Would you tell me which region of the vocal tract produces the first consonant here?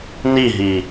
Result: tongue tip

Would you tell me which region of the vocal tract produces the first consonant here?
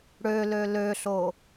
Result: retroflex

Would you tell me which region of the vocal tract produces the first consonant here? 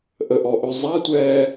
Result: throat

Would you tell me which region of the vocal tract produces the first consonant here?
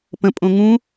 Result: lips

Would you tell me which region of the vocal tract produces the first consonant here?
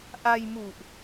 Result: throat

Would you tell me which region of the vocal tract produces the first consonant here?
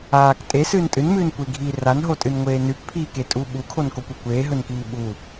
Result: velum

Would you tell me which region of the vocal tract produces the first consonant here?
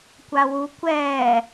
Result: velum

